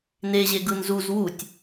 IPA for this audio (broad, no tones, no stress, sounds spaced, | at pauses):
n e ʑ e ɡ ɯ n z u z w u tʲ